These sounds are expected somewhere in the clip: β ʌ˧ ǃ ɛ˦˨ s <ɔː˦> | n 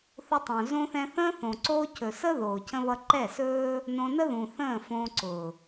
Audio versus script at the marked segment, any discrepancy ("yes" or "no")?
yes